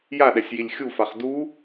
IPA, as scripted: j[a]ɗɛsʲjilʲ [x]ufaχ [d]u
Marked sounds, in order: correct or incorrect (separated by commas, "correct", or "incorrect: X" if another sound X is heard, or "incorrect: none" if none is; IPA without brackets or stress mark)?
correct, incorrect: xʲ, correct